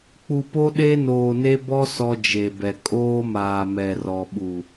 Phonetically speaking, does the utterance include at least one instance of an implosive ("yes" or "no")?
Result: yes